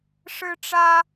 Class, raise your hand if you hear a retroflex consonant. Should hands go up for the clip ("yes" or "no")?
yes